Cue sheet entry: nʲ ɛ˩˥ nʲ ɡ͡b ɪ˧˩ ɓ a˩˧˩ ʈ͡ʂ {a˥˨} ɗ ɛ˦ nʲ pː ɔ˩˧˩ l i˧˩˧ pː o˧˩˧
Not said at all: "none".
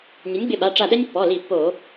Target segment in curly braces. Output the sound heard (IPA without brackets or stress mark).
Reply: a˧˩